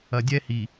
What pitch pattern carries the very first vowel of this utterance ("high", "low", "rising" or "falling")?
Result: low